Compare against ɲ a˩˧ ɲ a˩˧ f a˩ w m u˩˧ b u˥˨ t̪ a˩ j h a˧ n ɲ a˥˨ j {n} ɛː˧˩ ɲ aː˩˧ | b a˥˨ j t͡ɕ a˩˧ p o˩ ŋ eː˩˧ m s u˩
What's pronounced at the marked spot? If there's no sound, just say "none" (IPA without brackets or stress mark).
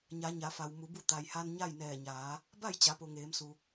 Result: n